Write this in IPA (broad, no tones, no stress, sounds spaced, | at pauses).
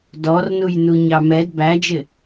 d ɔ r n u j n u ɲ ɑ m ɛ d b æ d͡ʒ ɪ